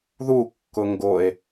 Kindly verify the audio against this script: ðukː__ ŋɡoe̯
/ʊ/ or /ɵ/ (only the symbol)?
ʊ